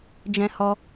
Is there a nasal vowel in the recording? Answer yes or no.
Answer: yes